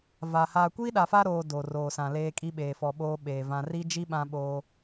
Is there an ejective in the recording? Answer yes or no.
yes